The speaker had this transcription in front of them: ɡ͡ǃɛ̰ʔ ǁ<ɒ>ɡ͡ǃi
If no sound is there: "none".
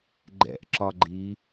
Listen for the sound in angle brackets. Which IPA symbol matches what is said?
ɒ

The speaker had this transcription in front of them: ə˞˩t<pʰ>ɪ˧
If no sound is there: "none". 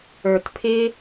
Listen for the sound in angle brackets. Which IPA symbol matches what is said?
pʰ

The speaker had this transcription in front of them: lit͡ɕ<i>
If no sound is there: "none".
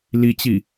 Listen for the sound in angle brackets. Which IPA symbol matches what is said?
i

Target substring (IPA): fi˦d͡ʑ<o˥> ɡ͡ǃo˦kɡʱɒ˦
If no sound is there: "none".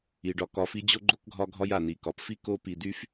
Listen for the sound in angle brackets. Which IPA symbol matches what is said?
o˥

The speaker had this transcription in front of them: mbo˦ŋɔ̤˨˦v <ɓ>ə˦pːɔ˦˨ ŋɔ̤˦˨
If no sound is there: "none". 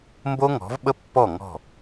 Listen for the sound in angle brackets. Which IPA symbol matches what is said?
ɓ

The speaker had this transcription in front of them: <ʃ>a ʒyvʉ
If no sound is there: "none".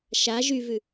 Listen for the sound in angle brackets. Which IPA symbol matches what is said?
ʃ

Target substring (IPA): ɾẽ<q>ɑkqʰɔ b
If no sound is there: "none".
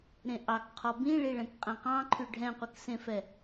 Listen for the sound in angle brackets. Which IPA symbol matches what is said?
ʔ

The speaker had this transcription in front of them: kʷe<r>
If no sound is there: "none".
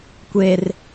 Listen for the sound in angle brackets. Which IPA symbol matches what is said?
r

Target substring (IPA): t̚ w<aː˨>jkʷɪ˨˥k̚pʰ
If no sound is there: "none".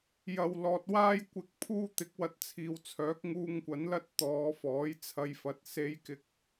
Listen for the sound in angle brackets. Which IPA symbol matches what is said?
aː˧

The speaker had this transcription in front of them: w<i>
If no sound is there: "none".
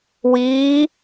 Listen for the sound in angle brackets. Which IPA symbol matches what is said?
iː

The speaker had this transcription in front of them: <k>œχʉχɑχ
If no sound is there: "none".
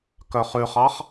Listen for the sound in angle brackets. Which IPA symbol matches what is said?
k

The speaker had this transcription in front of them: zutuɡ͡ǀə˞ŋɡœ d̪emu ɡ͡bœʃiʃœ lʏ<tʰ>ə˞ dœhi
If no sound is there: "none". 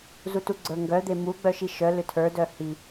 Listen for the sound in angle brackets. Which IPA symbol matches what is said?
tʰ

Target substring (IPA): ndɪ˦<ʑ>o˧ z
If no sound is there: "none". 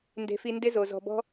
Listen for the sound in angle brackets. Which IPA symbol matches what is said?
z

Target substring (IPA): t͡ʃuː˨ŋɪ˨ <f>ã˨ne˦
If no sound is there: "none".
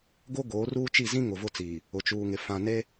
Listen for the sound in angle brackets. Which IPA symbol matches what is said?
f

